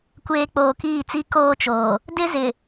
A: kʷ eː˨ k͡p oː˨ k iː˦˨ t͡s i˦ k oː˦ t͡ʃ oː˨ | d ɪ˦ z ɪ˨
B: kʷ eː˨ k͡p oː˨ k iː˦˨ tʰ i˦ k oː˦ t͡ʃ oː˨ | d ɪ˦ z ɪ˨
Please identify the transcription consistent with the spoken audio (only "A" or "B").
A